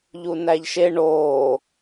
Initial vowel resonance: oral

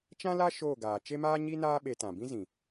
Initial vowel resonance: nasal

